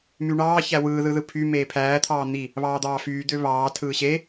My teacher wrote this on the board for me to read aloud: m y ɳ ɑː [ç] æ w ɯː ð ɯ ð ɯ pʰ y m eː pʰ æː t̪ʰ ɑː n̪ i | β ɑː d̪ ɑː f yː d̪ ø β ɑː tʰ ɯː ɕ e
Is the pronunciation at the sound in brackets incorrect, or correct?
correct